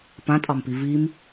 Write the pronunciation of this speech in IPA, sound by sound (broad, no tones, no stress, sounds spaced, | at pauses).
p ã tʼ ɑ m p i v i m